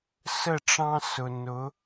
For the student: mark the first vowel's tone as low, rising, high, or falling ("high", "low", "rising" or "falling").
falling